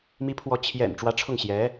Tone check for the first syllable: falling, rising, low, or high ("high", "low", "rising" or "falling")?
rising